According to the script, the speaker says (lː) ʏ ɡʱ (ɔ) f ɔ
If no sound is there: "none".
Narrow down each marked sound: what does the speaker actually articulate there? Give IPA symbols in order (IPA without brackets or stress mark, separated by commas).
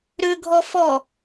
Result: ɾ, ɔ